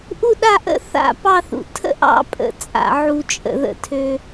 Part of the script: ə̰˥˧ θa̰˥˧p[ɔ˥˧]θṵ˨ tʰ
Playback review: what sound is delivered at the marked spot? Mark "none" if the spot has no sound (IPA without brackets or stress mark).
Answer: ɑ˥˧